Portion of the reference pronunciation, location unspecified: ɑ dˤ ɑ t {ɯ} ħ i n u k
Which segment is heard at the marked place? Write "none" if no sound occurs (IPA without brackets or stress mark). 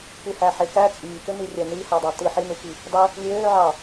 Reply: ɯ